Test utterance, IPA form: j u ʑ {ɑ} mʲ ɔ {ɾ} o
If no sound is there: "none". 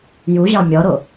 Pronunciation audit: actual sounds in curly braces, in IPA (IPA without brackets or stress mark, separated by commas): ɑ, ɾ